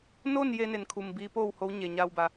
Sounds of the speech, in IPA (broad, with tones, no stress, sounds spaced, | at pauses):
n o˥˨ n j e˧ n e˧˩ n kʰ u˧˩ m b iː˧˥ p oː˥˨ w h o˧˥ w ɲ e˩ ɲ a˧ w b a˩